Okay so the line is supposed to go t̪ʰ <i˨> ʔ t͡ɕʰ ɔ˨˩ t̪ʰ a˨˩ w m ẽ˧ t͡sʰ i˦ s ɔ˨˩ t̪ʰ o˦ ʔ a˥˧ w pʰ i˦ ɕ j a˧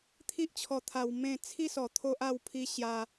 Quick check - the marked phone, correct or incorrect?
incorrect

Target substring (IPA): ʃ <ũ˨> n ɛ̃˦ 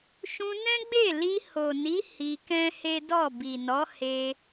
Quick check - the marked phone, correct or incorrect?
incorrect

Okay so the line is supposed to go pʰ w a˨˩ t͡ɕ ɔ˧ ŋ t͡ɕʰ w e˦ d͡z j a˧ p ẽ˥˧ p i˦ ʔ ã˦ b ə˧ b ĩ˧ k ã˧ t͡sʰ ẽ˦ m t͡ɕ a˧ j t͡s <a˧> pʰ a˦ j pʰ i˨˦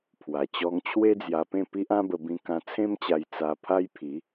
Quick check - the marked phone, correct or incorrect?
correct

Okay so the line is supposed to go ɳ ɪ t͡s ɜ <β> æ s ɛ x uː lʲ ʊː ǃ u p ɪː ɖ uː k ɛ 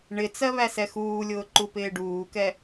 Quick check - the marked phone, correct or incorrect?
correct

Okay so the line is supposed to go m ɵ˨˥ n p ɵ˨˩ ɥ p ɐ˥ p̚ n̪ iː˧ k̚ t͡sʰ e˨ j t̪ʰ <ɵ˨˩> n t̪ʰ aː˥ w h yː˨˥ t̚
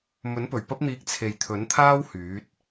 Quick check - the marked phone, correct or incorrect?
incorrect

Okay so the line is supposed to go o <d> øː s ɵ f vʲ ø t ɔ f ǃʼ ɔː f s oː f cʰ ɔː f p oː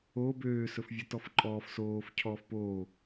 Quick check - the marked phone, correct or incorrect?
incorrect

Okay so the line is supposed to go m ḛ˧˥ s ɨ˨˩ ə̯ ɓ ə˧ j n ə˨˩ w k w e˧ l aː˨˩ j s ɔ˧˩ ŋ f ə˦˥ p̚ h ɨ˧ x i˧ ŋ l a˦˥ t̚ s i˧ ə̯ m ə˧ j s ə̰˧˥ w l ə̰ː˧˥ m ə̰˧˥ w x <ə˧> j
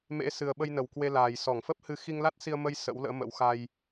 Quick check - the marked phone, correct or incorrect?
incorrect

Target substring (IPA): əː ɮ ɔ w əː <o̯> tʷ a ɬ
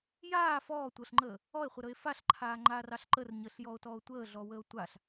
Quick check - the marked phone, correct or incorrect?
correct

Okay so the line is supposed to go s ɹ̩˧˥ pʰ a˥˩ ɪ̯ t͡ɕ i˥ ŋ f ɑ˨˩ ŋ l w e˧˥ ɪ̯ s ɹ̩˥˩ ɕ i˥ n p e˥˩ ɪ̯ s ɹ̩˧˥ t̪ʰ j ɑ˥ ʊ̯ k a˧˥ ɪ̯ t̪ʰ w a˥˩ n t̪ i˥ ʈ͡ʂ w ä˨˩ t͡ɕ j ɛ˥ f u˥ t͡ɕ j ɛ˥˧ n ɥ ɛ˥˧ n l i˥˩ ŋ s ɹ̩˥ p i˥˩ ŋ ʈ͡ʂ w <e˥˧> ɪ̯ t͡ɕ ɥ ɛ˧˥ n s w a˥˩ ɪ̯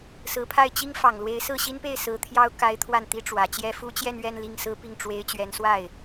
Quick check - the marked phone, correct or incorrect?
incorrect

